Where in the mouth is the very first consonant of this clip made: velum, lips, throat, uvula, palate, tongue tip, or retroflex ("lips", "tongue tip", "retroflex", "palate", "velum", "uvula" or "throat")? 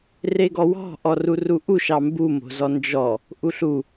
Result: tongue tip